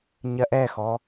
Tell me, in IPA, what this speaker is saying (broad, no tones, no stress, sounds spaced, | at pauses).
ɲ ɜ ʔ ɛ x ɔ